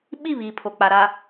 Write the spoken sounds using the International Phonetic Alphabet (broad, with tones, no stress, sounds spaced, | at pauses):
ɓ i˦˨ β iː˨ pʰ o˨ k͡p a˨ ɾ a˨